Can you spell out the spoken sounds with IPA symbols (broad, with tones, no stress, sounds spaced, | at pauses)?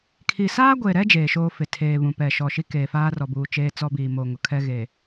kʰ i˨ s aː˦ ɡʷ e˨ ɾ ɛ˦ d͡ʒ eː˨ ʃ oː˦ f ɪ˨ tʰ eː˨ β ũ˨ p ɛ˨ ʃ ɔ˨ ʃ i˦ k eː˨ f aː˦ r ɔ˨ b uː˨ t͡ʃ eː˦ t͡s ɔ˦ b iː˨ m o˨ ŋ ʊ˨ kʰ ɛ˦ ɣ eː˨